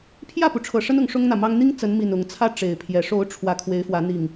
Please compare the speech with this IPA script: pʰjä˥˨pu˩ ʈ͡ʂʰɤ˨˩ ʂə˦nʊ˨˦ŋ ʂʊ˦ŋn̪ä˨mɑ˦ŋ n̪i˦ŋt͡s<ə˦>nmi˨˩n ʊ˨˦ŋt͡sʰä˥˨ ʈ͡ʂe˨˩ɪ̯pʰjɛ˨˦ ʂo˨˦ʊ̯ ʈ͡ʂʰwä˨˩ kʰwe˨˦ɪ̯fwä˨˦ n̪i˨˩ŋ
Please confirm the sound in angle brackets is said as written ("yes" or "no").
no